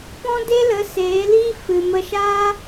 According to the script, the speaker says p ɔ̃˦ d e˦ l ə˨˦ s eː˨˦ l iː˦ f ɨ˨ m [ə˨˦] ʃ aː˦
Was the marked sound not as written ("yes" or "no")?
yes